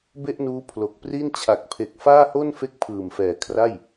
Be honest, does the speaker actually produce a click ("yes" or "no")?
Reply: no